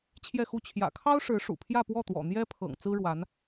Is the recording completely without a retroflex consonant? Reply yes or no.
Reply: no